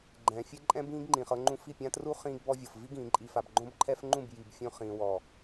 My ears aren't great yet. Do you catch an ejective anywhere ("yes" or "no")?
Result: yes